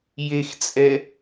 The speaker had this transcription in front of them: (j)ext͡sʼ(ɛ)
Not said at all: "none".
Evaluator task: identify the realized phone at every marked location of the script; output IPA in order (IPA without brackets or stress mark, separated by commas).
j, ɛ